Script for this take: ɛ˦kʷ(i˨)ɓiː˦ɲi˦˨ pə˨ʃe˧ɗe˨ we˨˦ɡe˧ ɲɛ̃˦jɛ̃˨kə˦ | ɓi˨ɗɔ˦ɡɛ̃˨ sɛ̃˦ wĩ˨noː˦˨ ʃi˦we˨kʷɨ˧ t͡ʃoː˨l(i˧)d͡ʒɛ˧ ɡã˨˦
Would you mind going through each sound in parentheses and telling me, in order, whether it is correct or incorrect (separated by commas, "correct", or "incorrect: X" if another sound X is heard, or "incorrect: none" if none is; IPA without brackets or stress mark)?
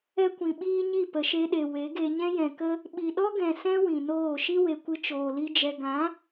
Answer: incorrect: ĩ˨, incorrect: i˦